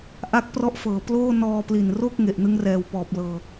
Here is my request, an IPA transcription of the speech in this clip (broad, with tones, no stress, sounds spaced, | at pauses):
ʔ a˦˥ k̚ p r ɔ˦˥ ʔ f ɤː˨˩ p l oː˥˩ n ɔː˧ p l i˨˩ n r o˥˩ k̚ ŋ e˨˩ ʔ n ɯ˦˥ ŋ r ɛː˨˩ w p ɔː˨˩ p̚ l ɤː˧